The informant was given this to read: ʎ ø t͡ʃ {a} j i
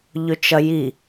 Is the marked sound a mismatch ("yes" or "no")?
yes